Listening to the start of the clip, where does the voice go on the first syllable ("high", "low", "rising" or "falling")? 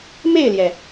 falling